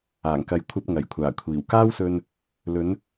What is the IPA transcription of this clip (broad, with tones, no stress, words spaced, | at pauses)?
aː˨˩ŋkɐ˨j kʷʰɐ˧p̚ŋɐ˨˩jkʷʰaː˨˩ kʷʰiː˨˩wkaː˥wsɵ˧n | lɵ˨˧n